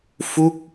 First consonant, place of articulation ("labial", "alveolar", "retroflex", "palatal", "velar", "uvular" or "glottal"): labial